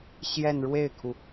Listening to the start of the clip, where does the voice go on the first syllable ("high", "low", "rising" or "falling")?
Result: falling